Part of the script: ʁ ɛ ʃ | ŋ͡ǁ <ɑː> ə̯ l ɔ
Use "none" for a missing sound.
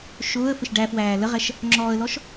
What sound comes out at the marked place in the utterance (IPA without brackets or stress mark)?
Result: ɔː